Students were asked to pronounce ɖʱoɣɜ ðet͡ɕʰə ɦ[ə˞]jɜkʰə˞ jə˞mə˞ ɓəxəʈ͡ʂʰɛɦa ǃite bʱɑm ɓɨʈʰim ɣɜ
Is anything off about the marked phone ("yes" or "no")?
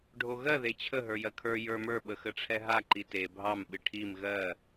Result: no